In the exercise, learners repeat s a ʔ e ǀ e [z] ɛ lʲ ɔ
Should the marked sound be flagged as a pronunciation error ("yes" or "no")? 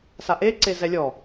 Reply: no